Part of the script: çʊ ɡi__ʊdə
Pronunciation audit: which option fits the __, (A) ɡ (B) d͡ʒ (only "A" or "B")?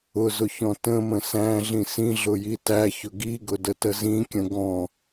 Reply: A